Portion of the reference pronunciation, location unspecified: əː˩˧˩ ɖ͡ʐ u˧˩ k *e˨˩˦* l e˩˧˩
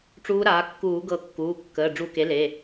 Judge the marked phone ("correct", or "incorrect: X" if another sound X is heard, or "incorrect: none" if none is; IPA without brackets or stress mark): incorrect: e˩˥